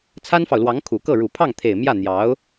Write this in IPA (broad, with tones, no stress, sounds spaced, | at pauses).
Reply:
t͡sʰ a˥ n f ɑ˨ ʊ̯ l w ɑ˧˥ ŋ kʰ u˨˩ k ɤ˥˩ ɻ u˨˩ pʰ ɑ˥˩ ŋ t̪ʰ e˨˩ ɪ̯ m j ä˥˩ n̪ j ɑ˧˥ ʊ̯